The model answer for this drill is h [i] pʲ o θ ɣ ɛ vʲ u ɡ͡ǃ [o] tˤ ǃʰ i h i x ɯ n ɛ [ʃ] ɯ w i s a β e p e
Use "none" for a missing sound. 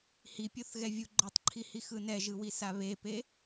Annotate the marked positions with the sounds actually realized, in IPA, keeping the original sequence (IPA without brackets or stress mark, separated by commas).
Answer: i, o, ʒ